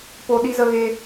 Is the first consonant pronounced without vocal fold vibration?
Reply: yes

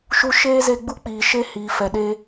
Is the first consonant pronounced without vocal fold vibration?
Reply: yes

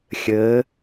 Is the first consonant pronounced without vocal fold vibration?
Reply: yes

